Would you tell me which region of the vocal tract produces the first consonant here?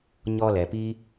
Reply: palate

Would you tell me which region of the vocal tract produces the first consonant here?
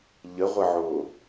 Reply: palate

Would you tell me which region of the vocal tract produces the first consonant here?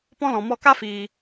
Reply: lips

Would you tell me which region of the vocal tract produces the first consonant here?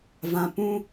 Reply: lips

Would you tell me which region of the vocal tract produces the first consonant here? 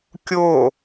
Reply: velum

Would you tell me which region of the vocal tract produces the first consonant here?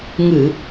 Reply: velum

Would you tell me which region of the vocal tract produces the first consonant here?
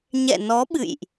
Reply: palate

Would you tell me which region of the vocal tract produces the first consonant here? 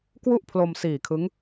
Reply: velum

